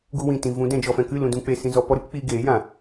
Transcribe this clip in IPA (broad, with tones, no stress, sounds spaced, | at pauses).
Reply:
ɡ u˧ w ĩ˨ t ĩ˨ v ũ˨˦ d ɛ̃˧ d͡ʒ ɔ˧ f ɛ̃˧ k ɨ˦˨ l ũ˧ d ũ˧ k͡p e˧ s ĩ˧ z ɔ˧ p ɔ˦ ɾ ɨ˦ p k͡p iː˧ ɡ eː˨˦ j ã˨